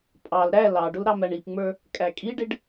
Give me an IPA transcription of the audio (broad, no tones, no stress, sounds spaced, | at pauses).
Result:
pʼ ɑ l ɾ æ l ɑ ɖ ʊ l ɾ ɑ m æ ɳ i p ŋ͡m ə˞ | kʼ æ kʼ i ɖ ɪ ɖ